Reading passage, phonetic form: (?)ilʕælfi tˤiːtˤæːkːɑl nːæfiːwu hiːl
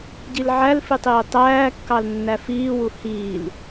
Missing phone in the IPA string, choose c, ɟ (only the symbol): ɟ